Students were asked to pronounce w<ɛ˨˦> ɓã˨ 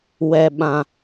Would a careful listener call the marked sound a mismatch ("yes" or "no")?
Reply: yes